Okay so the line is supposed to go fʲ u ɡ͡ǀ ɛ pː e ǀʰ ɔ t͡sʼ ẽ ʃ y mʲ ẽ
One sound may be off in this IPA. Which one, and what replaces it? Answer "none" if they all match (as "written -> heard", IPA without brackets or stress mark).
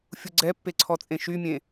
none